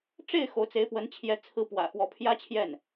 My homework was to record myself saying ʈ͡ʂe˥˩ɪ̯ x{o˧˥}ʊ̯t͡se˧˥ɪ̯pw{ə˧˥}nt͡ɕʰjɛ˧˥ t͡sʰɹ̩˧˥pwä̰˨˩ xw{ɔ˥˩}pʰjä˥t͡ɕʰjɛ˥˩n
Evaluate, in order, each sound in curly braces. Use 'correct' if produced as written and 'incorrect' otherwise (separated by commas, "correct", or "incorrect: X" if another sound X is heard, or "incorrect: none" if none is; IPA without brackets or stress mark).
correct, correct, incorrect: ɔ˧˥